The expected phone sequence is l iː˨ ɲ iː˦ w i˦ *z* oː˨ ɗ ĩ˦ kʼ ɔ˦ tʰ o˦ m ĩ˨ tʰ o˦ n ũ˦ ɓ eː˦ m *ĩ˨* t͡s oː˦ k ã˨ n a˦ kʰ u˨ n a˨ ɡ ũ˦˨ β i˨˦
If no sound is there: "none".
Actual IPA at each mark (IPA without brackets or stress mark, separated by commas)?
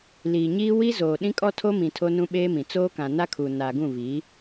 z, ĩ˨